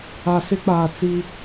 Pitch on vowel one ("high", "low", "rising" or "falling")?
low